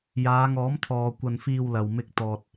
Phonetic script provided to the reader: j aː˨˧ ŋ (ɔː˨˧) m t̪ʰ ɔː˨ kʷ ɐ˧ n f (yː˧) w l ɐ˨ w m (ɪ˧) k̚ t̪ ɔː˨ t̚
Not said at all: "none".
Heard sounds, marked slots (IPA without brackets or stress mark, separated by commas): ɔː˨˥, iː˧, ɪ˧